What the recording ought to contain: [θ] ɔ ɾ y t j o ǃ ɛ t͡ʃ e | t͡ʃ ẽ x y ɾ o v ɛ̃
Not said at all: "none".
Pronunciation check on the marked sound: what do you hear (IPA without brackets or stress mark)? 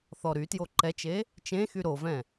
θ